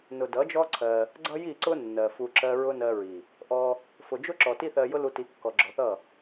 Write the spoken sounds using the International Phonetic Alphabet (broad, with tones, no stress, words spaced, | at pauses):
nʊ˨dʌ˨˦d͡ʒɔ˦ ǀʰɜ˧ | ɡ͡ǀʌ˦ji˦˨ ǀʊ˦ nːɜ˨fu˧ ǁɜ˦ ɹʊ˦ nɜ˧ɹi˨ | ʔɔ˧ | fʊ˨d͡ʒʊ˦ǁɔ˨ ti˦θɜ˧jʊ˦lu˧ ti˨˦kːɔ˨ɡ͡ǁɔ˨θʌ˦˨